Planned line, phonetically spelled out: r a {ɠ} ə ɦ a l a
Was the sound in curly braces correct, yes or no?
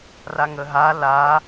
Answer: no